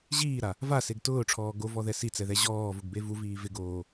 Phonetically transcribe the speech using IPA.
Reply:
ʑ iː ɾ a | v a s e ɡ t ʊː ʈ͡ʂʰ ɔː ɡ o v ɔ ð ɛ s i t͡s ɛ ð ɛ ʑ ɔː v ʊ ɡ b e v u v iː v ɪ ɡ oː

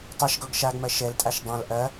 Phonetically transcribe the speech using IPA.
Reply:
tˤ ɛ ʃ ɡ ɔ ɡ ʃ a ɡ m ɐ ʃ ɛ l tʼ a ʃ dˤ ã l ʔ ɐ

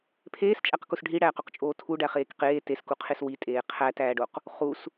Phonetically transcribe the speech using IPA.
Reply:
pʰ eː s t͡ʃʼ æ q k u s ɖʱ i ɽ æː q o q t͡ʃʼ oː tʰ u ɖ æ χ eː k q eː t e s k u qʰ e s w i tʼ eː qʰ æ t æː ɖ o q | χ u s

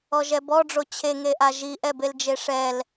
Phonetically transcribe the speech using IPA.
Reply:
ɔ ʒ ɛ b ɔ ɖ͡ʐ o t͡ɕʰ e ŋ e ʔ a ʒ i ʔ ɛ b e l d͡ʒ e ʂ ɛ l

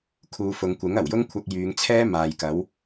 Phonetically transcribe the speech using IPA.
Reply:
kʰ uː˨˧ f ʊ˨˧ ŋ kʷ ɪ˨˥ ŋ ɐ˨˩ w j ʊ˥ ŋ kʷʰ ɐ˧ k̚ j yː˨˧ ŋ t͡sʰ ɛː˥ m aː˨ j k ɐ˨˥ w

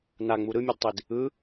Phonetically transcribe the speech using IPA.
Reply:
n a ŋ͡m u ɾ ɯ mʲ e d tˤ i d | ɯ

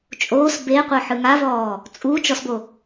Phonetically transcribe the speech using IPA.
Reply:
t͡ʃʼ oː s b e qʷ ɤ ħ ɯ ŋ a v ɔː | t͡sʼ u t͡ʃ ɔ s b o

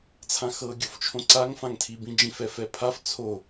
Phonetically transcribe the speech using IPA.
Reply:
t͡sʰ ã x ɤ ɡʲ o f t͡ʃʰ õ ǀ a ŋ f ã ŋ tʰ i b ĩ d͡ʒ ĩ f ɛ f ɛ pʰ a f t͡sʰ o

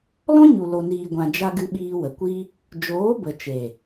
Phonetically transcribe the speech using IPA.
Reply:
l ɔ̃˦ ɲ u˨ l o˨ n iː˨ ɡʷ ã˨ d͡ʒ a˧ ɡ ɨ˧ ɓ iː˧ w ə˨ kʷ i˦ | d͡ʒ oː˨˦ b ə˨ t͡ʃ e˨

